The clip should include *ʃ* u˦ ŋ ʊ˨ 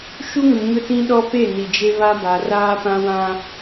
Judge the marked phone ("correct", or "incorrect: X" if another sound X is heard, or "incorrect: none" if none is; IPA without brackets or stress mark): correct